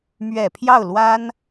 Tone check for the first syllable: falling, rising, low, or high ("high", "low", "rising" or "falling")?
low